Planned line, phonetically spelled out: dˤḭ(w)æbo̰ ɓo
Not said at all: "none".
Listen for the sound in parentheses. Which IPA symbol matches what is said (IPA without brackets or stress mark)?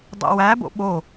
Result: w